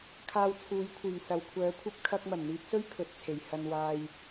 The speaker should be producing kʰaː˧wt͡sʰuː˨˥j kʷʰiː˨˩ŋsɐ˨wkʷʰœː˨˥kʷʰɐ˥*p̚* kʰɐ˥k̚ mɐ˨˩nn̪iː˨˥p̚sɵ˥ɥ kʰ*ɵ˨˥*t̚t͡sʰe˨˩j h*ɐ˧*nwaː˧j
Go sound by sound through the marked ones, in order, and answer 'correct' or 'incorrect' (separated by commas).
correct, correct, correct